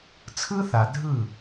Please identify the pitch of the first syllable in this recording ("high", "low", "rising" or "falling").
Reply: high